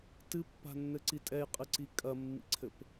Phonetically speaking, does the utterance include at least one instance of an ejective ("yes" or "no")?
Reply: yes